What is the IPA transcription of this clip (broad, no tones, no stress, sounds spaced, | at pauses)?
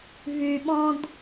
v y ɓ ɔ̃ d